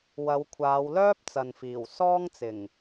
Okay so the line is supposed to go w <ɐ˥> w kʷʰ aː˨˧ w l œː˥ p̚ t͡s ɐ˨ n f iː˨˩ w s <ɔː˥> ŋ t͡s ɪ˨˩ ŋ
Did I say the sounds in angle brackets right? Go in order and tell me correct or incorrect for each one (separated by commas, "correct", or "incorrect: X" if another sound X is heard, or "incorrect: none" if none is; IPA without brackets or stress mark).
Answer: incorrect: ɐ˨˧, correct